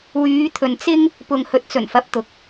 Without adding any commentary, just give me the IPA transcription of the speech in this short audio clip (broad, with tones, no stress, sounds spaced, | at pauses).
w yː˨˧ t̪ʰ ɵ˨ n t͡s ɪ˥ ŋ | p ʊ˨ ŋ h ɵ˨ t̚ t͡s ɵ˨˩ n f ɐ˨˥ p̚ t̪ ʊ˨ k̚